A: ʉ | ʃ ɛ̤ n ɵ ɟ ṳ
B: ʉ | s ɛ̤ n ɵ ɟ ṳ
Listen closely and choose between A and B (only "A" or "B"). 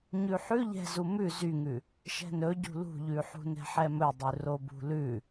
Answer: A